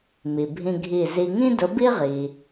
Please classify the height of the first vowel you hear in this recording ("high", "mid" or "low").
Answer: high